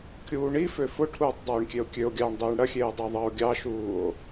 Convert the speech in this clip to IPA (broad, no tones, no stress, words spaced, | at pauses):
kʲuːɳifø fʊʈʰuːtˤ dˤuːɳkʲeo̯kʲøo̯ɡʲɑːɳ dˤeːɳɽɐxʲeː dˤeðˤɑo̯ɡʲɑʃuːo̯